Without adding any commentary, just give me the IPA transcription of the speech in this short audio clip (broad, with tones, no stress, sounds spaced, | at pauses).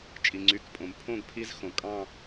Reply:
t͡ʃʼ i˩ ŋ͡ǀ y˩˧˩ k pʼ õ˩ m pʰ õ˥˧ ɡ pʰ i˦˥ z x õ˩ kʼ ɑ̃˥˧